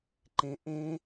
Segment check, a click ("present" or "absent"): present